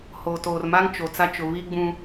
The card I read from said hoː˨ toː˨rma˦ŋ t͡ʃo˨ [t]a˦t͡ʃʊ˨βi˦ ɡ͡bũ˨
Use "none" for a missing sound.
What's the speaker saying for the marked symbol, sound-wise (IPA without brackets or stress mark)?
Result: t͡s